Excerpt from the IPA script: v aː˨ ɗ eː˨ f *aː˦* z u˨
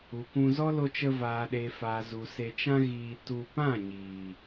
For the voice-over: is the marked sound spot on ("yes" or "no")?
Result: no